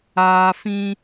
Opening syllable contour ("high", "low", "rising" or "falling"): high